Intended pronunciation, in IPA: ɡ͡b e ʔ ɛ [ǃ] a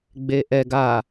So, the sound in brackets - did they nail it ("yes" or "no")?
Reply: no